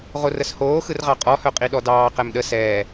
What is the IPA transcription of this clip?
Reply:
ʁorəshoː xɯrʁɑqʼɔ hœqʼiɗɔdɑː qɛmɗə sɛː

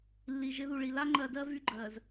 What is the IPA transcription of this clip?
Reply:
lːi˨ʒɪ˦ ðu˨ɭi˨ la˦ŋ͡ǃɜ˨dɜ˦ vy˦ɡ͡ǃɜ˨z

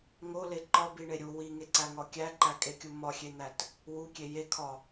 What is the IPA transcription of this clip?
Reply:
ŋole ǃɒbiɳe ɾʲu wiŋeǀæŋɒ kʲæǃækʼekʲu mɒxʲen̪æt | wukʲe jekʰɒ

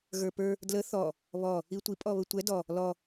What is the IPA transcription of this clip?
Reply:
ɣə˞pə˞ | dlə θɔ | βɔ | itʷi pʼɔβətʷɛ dɔ | lɔ

